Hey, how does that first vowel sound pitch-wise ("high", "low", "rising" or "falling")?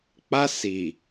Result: high